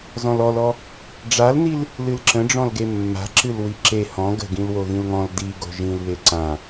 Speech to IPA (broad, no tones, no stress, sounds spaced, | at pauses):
z ɔ̃ l ɔ l ɔ | ɖ͡ʐ a l n i l | l ɨ l ǁ ə̃ ɖ͡ʐ ɔ̃ l ɡ e mː a̤ ǁ ɨ l w i ǁ e h ɔ̃ ɡ ə̤ ɡ ĩ l w o ɣ ĩ l ŋ ɔ̃ l d i ɡ o̤ ʒ ĩ l β e ǀ ã